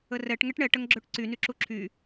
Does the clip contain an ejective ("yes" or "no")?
no